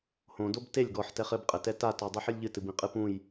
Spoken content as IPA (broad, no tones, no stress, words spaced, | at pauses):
hõdob telʲ ɡɔħtɛχ ɘbqʼɘtɛ tatɔdˤɨħɨlʲ ʎɨtɨbĩqʼɨ pũj